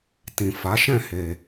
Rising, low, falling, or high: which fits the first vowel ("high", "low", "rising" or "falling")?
low